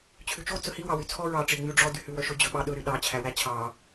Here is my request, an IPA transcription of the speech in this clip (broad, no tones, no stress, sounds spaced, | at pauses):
t͡ɕʰ ʉ t͡ʃ o t͡s ɵ h i w ɑ w y t͡sʰ ɔ ɹ ɑ ʈ͡ʂ i ŋ͡m y ɖ͡ʐ ɔ d y h ʉ w œ ʃ ɵ d͡ʑ ɵ ɓ ɑ ɗ ɵ ɾ y ɗ ɑ t͡ɕʰ æ w æ t͡ɕʰ ɑ